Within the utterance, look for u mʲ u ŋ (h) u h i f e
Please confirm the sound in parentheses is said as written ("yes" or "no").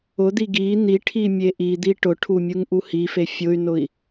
no